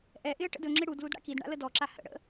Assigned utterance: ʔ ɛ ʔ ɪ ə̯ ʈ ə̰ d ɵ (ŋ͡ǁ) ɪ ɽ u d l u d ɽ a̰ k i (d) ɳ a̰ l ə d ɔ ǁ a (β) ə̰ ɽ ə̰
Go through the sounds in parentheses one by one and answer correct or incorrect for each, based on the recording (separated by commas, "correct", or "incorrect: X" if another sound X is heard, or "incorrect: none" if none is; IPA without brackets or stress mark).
correct, correct, incorrect: h